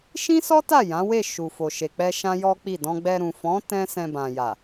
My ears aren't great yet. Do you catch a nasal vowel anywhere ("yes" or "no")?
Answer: yes